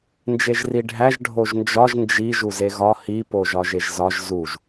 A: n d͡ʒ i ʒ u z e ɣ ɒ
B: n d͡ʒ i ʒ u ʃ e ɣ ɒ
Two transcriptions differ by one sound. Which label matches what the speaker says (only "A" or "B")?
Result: A